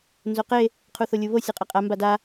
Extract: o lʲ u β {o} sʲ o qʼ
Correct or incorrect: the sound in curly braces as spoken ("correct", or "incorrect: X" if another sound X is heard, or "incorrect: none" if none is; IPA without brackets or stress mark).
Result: correct